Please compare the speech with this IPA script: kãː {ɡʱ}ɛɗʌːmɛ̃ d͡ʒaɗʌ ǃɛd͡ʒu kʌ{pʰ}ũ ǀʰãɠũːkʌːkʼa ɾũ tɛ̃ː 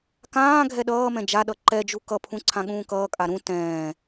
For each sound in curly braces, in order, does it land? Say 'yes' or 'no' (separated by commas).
yes, yes